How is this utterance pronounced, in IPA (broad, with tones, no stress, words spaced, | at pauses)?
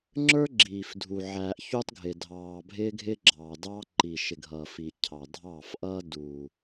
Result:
ŋ͡ǁə˞˦ ɡ͡ǁiː˨fdʱu˨ ʕæː˨ʔ çu˦tˤɡʱɪ˨ dʱɑː˨ bʱɪː˦ɡʱɪː˦ɡ͡ǁɑː˨dɑː˦ ǃi˨ʃɪ˨ɡʱʌː˨fi˨ cʰɑ˨dʱɑː˦˨fʔʌː˦ du˨